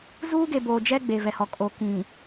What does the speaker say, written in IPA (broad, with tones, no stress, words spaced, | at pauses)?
zuː˦ɡe˨boː˨d͡ʒɛ˦ ɡ͡be˨vɛ˨hɔ˨ kʼo˨kĩ˨